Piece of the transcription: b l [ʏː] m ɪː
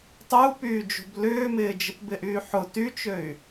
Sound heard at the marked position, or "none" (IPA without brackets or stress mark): ʏː